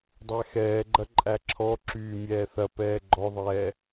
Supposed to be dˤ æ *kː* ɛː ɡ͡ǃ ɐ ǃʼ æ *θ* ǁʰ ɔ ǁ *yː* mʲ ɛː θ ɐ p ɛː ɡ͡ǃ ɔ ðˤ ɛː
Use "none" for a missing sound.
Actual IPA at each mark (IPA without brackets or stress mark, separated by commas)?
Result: x, none, yː